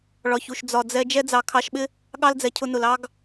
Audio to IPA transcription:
ɭɒ˨çu˨ʃ d͡zɒ˨d͡zɛ˧ d͡ʒɛ˦d͡zɑ˧kʰɑ˧ʃ ɓɪ˦ | ɠɑ˦ld͡zɛ˨cʰʊ˧nʊ˨l ɑ˦ɡ

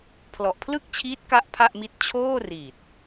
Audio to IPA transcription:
pʰlɔ˨˩ʔpʰlɯ˥˩k̚t͡ɕʰiː˦˥t̚ ka˥˩ʔpʰa˥˩ʔmi˦˥t̚ t͡ɕʰoː˥˩ri˨˩t̚

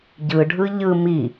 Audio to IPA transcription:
ɟɯɖʱɯ ʎɯ mi

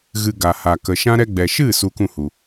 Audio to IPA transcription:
ɣɨ˧ ɡa˨ha˨kə˨ʃã˦ ɾɛ˧ɡ͡bɛ˨ ʃɨ˦˨ su˦kũ˦˨hu˨

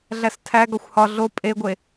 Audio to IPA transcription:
ɮæstʰæɡɒxʷ hɒ ɮo pʼeɡʷe

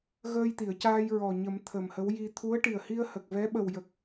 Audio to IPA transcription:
ɣəː˧jt̪i˨˩˨ə̯caː˧j ɹɔ˨˩ɲə˨˩˦m t̪ʰə˨˩mhə˧˥wji˧ t̪ʰu˧˥ə̯ʈi˨˩ə̯hi˧ə̯hə˨˩k̚ vɛ˧˥ɓə˨˩wjə˨˩k̚

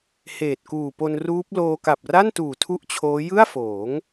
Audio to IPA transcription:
heː˨˩t̚kuː˨˩po˧nruː˦˥p̚ loː˧ka˨˩p̚ra˥˩ntuː˨˩ tʰu˥˩ʔt͡ɕʰoː˦˥ jɯ˥˩a̯foː˩˦ŋ

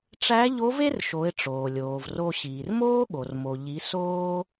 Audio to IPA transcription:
ʈ͡ʂæ˧˥ʎo˧˥ve˥rʃo˩˧ɪ̯ ʈ͡ʂoː˩lʲoː˩v ro˧ ɕiː˩rmoː˥ɠo˩r mo˩ʎi˩˧ soː˥

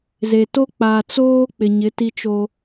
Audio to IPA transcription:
ze˨to˦ k͡pa˨t͡soː˦ k͡pɪ˨ɲɪ˨˦ ti˦t͡ʃo˦

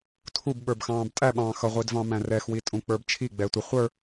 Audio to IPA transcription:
tʰub ɓə˞bxɑ̃ːbtʼæ ɓɑ̃ːxʌ ʁʷidvɑ̃mæ̃rɛx witʼũk͡pə˞bt͡ʃʰi ɡ͡bɛːtʷʌ χʷə˞

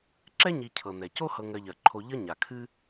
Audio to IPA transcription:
ǁɛ˥ɲi˨cʰɤ˩ n̪ɛ˩co˥ hɤ˨ŋɜ˨ʎɜ˩ǃʰo˨ ʎʌ˥ɲa˩kʰɨ˥

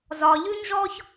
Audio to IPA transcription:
zɒː˨ʎʉ˦ɲʒɔː˦ç

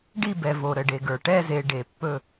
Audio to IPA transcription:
ɖi˦˨bɛ˨ vo˨ɾə˨ɖe˨ɡə˞˨ ʈɛ˦˨ze˨ ɖe˨ pːɵ˦˨

